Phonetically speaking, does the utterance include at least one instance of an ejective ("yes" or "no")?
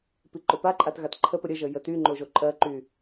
yes